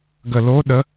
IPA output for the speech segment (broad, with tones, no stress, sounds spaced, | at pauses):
ɡ ə˧˩˧ l o˧˥˧ ɗ ə˧˥˧